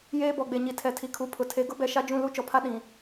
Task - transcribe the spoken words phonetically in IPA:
jeː˦bɔ˨ɡ͡be˨ɲi˨ tʰɛ˨tʰi˨kʰu˨pʰʊ˨ tʰe˨ɡʊ˦bɛ˨ ʃa˦d͡ʒũ˦˨lu˦ t͡ʃɔ˨pʰa˦ ɗĩ˨

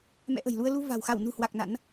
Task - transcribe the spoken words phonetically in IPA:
mɛ̰˧˥ʔə̤˨˩jlu˧ə̯ lu˧va̤˨˩w xa˧˩w nṳ˨˩hwa˨˩k̚ na̰˧˥n

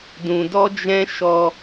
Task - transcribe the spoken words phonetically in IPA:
dũ˧dɔ˦d͡ʒɛ̃˦ ʃɔ˧

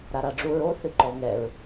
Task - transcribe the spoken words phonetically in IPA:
ɾaɾaɖ͡ʐuɹo θɨǃɔ ŋɛɹ

